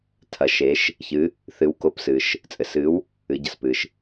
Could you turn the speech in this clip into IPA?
tʰɐ˩˧ʃe˩˧ʃ | çɨ˩˧ | θɨ˨˥wko˨˥p sɨ˩ʃ | t͡sʼɘ˩sɨ˨˥w | ɨ˩˧ɟɐ˩spɨ˩ʃ

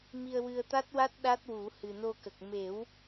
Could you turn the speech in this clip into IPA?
mi˧ə̯wɨ˧ə̯t̪a˦˥t̚wa˦˥t̚ ɗa˦˥t̚wu˨˩˦ hɨ˨˩no˧kə˨˩k̚ me˨˩˦w

